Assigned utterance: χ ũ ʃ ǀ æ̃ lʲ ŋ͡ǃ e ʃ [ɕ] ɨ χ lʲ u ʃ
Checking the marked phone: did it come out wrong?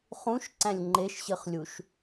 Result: no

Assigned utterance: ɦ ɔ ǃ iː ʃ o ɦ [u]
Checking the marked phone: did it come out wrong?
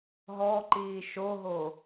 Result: yes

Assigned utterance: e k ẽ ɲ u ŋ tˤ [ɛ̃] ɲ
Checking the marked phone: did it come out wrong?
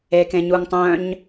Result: yes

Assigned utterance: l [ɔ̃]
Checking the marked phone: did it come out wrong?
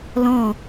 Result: no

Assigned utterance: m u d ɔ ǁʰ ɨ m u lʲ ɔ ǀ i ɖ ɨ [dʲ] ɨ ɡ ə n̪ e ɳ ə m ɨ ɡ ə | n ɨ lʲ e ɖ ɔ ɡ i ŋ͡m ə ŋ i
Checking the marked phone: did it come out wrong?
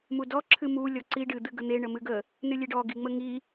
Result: yes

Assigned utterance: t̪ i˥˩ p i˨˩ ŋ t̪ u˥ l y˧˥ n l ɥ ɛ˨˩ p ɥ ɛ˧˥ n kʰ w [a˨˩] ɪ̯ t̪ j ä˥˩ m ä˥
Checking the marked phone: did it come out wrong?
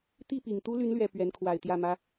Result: no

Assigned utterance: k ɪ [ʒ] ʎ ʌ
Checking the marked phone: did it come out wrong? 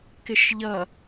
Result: yes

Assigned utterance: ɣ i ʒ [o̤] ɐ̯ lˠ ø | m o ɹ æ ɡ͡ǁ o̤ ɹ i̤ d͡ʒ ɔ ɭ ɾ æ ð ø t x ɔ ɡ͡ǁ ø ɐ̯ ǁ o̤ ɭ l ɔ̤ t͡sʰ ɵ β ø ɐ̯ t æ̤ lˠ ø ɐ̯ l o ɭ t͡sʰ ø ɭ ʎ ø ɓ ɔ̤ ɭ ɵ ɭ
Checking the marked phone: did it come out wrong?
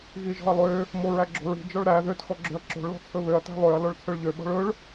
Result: yes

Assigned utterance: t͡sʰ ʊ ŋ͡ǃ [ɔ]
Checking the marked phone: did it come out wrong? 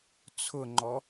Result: no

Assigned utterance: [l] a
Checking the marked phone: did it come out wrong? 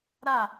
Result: yes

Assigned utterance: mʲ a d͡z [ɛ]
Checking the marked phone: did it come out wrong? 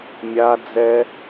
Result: no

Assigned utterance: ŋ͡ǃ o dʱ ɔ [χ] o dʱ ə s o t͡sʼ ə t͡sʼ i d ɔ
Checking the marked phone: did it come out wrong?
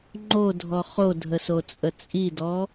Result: no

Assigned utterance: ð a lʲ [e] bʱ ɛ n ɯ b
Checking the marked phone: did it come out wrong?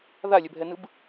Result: yes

